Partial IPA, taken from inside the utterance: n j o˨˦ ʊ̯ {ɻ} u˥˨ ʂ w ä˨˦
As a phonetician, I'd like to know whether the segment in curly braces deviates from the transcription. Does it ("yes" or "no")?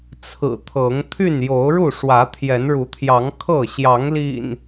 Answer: no